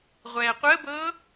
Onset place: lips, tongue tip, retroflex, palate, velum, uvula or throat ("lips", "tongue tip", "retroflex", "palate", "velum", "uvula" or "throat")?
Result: uvula